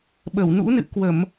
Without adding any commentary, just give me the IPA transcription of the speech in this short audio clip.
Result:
ɓ ə˧˩ w n ṵ˧˥ n ɨ̰˧˨ k w ə˧˩˨ m

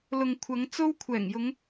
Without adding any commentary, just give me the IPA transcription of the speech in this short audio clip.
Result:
l ʊ˨ ŋ kʷʰ ɐ˨˧ ŋ t͡s o˥ w kʷʰ ɛː˨˩ ŋ j ʊ˨˧ ŋ

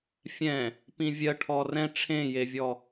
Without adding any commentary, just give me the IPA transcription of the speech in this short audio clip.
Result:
fʲ ɛ̃ | p ĩ vʲ ɜ ʈʰ ɔ r ɛ̃ ʈ͡ʂʰ ẽ j e vʲ ɔ

